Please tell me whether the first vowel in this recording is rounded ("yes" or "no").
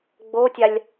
yes